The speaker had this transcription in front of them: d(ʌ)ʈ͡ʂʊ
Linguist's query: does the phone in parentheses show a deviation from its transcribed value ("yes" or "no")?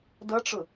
no